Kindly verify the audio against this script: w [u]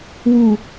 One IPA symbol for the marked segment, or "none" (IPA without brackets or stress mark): u